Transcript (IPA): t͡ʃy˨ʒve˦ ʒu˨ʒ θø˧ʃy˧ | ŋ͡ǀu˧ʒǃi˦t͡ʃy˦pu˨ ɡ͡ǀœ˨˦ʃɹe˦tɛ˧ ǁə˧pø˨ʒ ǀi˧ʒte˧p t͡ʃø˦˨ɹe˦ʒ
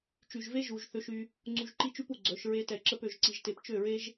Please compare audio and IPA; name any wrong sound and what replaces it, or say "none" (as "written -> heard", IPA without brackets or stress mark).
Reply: none